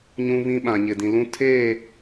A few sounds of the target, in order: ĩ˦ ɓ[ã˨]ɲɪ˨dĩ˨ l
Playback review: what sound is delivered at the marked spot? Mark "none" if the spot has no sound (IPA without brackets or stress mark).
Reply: ã˨